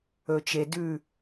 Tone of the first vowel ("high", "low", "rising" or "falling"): low